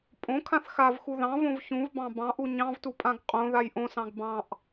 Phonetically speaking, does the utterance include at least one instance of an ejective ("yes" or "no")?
yes